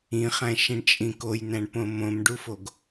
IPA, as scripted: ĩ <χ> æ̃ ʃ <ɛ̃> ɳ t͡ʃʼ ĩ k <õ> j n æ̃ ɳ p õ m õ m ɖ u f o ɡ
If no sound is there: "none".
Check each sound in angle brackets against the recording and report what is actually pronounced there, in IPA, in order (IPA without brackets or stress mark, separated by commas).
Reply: χ, ẽ, o